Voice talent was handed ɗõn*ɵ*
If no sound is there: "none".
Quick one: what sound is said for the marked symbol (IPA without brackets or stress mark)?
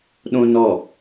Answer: ɔ